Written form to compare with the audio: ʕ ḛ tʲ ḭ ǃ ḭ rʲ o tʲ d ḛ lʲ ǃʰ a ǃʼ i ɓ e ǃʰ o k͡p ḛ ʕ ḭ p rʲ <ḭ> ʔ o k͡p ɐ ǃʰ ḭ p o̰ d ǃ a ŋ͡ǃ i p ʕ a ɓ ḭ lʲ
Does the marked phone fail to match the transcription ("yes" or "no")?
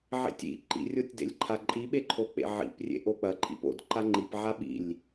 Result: yes